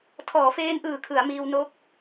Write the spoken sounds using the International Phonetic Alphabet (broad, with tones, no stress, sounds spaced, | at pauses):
tʰ ɔː˩˦ f eː˧ n ʔ ɯː˨˩ kʰ ɯ˩˦ a̯ m iː˧ w n o˦˥ k̚